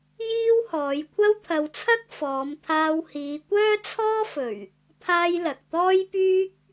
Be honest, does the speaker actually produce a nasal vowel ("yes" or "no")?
no